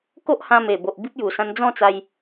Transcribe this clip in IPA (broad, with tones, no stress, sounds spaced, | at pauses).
k o˦ ʔ h ã˧ m e˨˩ b o˨ ʔ b i˦ p̚ j u˨˩ s ã˧ n d͡z ɔ̃˥˧ t͡s a˧ j